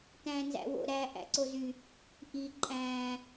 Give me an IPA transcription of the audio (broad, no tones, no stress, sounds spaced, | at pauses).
t æ̃ː n z æ̰ w o̰ ɾ æ ʔ æ̰ ǀ o z y | ʔ i ǃʼ æ̃ː